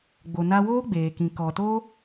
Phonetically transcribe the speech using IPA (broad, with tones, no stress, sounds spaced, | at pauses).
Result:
ɡ͡b o˧ n a˦ w oː˦ ɡ͡b eː˨ k ĩ˨ k ɔ˨ t o˦